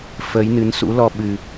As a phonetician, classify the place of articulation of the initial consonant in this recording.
labial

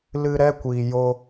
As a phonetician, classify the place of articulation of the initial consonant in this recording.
alveolar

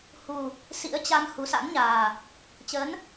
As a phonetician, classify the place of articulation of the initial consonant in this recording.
glottal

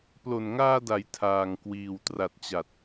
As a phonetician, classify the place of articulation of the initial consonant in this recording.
labial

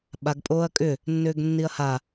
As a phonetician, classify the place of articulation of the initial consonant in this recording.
labial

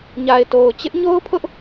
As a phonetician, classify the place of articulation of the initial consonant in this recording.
palatal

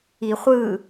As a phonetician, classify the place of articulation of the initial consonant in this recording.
uvular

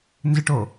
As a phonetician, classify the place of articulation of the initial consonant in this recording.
alveolar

